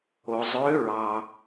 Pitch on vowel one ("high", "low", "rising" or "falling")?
low